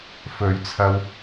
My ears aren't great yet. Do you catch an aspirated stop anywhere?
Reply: yes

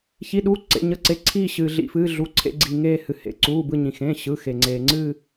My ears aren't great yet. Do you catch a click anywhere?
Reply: yes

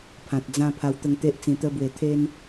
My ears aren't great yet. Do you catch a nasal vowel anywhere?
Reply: yes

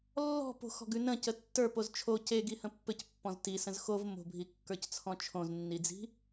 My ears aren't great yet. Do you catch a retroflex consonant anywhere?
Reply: no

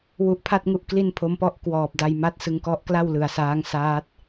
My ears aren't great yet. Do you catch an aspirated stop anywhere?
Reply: yes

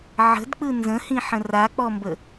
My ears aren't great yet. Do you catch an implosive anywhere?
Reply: no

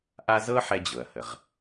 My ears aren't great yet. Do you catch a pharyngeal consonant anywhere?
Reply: yes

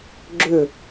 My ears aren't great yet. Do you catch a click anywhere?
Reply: yes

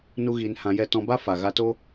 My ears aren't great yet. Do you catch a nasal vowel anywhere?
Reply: yes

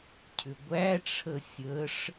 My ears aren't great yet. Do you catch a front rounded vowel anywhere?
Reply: yes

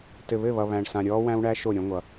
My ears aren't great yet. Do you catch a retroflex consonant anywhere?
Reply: yes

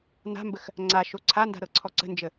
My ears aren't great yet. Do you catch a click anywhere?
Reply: yes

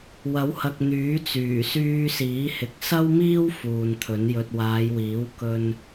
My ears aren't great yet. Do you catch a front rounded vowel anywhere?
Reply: yes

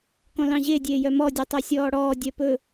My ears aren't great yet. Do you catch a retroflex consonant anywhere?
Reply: yes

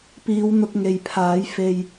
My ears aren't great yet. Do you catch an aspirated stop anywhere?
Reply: yes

